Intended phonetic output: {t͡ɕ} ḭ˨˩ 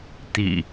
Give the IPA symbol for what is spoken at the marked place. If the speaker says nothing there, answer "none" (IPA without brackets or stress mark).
t̪